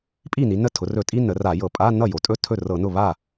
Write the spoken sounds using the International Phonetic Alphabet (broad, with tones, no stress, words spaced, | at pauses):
pʼi˥˩ni˩˧ nə˥˩tʰʊ˩˧rɵ˧˩˧tʼi˧˥˧ nə˩˧ra˧˩˧ jɤ˧˩˧pʼa˧˥˧ nʌ˥˩jo˩˧tʼɵ˧˥˧ tʰɵ˥˩ rɤ˧˩˧ nʊ˥˩ βa˥˩